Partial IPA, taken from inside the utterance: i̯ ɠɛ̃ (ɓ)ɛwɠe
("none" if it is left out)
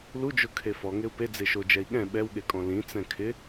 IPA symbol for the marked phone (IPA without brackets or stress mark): ɓ